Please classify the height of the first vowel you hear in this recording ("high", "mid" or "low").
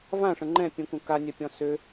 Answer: low